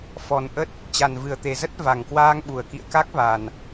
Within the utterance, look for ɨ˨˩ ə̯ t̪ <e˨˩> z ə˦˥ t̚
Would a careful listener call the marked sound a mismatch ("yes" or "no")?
no